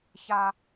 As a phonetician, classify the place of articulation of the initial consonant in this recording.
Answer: palatal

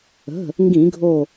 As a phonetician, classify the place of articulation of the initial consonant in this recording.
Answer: velar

